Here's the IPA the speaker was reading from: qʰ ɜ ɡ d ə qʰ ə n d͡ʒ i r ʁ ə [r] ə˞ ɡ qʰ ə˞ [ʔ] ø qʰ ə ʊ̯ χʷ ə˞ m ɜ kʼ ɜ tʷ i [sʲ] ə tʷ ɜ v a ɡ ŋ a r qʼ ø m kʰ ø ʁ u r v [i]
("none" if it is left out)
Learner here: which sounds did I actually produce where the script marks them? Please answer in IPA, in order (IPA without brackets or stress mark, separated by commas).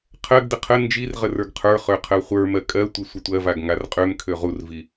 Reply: r, χ, sʷ, i